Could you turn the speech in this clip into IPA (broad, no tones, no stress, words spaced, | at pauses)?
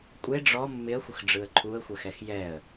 kʷʼe ɖ͡ʐɔ mːɪə̯xʷəxɖ͡ʐɯə̯ ǃʰuə̯xʷɜxɛx jɛə̯